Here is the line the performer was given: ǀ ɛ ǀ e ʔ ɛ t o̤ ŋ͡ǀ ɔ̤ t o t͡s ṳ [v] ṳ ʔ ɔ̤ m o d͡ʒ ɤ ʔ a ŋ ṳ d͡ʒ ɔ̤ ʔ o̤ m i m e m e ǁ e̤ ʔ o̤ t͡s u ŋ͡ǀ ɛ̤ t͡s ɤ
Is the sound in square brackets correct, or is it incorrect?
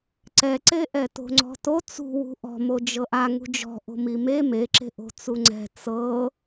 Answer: incorrect